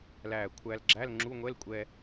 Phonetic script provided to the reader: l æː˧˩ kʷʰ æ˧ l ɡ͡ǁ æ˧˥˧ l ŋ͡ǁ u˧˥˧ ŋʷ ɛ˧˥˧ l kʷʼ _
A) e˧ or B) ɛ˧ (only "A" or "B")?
B